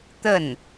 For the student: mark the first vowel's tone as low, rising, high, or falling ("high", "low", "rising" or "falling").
falling